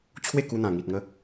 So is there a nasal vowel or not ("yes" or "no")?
yes